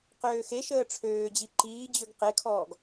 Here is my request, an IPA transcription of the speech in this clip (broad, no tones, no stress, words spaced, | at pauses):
qøːxeʃəː ʈ͡ʂʰøːd͡ʑi ǃiːd͡ʑøɡ qekʰɔːɡ